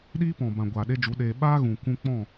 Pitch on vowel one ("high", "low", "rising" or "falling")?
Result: high